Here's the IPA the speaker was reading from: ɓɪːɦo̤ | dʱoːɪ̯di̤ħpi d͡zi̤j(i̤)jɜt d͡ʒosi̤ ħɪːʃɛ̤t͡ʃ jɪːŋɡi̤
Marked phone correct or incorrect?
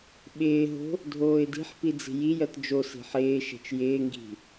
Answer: incorrect